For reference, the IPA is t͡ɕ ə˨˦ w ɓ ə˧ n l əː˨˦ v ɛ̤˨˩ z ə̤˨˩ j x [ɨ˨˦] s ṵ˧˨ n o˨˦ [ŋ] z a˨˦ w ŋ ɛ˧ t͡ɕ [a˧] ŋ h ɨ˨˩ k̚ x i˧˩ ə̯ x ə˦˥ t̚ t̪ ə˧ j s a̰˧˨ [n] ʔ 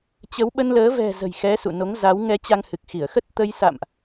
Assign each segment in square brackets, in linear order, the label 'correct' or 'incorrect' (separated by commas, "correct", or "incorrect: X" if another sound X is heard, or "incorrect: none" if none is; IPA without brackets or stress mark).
incorrect: ɛ˨˦, correct, correct, incorrect: m